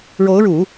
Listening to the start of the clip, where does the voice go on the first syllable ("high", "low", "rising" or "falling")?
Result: rising